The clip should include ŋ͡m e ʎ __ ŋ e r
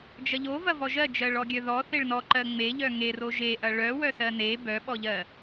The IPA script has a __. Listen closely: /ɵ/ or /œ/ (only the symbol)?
œ